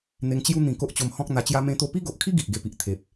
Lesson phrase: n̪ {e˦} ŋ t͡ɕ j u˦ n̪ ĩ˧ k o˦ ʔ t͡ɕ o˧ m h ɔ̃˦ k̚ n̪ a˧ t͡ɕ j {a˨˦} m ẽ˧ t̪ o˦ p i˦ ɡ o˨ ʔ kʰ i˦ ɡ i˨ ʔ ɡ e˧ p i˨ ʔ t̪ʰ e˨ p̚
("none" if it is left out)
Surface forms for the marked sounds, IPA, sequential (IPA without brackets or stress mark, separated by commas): e˧, a˧